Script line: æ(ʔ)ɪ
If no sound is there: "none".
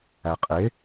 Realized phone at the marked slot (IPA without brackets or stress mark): qʼ